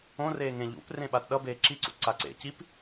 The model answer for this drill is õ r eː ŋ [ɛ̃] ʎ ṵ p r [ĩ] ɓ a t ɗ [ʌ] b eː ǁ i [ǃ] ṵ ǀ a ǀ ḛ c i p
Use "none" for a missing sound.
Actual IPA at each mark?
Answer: ẽ, ẽ, ʌ, ǀ

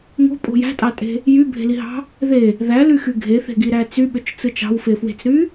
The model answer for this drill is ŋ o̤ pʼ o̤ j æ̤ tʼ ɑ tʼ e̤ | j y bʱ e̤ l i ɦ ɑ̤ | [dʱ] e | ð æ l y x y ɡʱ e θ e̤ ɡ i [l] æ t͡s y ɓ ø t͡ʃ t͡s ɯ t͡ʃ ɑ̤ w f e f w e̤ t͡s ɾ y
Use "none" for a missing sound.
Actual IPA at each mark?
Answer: ð, ɾ

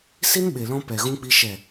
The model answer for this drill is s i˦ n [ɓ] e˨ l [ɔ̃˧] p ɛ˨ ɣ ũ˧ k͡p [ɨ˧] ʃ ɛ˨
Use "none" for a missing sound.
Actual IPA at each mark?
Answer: ɓ, ɔ̃˧, i˧

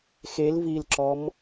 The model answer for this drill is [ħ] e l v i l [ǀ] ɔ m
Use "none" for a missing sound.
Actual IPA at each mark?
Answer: x, ǁ

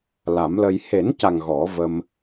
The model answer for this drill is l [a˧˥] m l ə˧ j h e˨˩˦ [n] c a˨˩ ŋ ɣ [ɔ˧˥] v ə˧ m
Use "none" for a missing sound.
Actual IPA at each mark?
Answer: a˨˩˦, n, ɔ˨˩˦

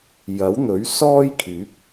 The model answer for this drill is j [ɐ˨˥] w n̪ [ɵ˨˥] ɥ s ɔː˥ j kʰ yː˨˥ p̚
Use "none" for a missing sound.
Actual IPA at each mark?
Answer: ɐ˨˥, ɵ˨˥

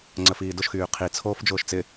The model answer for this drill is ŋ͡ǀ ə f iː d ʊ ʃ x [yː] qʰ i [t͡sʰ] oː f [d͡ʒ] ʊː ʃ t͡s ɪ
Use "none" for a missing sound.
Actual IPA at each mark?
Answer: yː, t͡sʰ, d͡ʒ

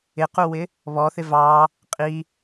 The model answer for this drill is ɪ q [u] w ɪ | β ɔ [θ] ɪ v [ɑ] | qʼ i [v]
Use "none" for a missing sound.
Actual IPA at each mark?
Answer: u, θ, ɑ, none

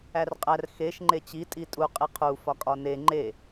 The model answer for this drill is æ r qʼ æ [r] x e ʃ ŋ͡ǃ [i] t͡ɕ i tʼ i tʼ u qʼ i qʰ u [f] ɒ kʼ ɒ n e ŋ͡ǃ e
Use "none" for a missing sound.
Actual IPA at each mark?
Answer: r, e, f

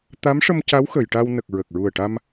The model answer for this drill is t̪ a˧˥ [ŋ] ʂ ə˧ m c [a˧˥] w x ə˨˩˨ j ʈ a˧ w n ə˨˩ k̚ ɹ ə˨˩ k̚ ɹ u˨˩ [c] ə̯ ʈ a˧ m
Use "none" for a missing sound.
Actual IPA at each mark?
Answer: m, a˧˥, none

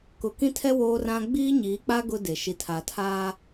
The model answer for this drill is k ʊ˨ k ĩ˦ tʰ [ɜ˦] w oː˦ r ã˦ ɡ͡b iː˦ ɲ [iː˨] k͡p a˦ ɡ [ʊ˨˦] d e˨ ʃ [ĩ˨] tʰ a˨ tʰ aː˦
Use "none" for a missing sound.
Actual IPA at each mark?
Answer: ɛ˦, iː˨˦, ʊ˦, i˨

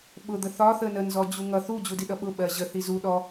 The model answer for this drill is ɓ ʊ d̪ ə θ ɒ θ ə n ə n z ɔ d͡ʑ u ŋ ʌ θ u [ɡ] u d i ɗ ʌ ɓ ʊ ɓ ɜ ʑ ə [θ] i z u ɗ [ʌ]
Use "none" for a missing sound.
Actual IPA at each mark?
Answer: d͡ʑ, θ, ɔ

